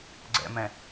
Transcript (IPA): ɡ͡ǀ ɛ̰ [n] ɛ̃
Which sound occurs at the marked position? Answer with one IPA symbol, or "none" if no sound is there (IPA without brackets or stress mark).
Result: m